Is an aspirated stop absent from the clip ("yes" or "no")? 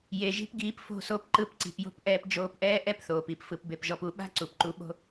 yes